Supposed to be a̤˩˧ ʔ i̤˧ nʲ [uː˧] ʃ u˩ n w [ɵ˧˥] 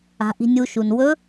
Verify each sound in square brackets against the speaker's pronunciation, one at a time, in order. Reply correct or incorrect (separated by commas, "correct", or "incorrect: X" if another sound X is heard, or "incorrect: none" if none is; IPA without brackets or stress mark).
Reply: incorrect: u˧, correct